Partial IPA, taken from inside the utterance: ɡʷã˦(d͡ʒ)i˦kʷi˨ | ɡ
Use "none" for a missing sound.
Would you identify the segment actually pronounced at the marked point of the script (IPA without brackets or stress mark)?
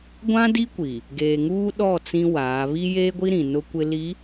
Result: d